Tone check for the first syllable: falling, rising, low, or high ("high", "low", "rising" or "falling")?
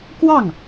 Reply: falling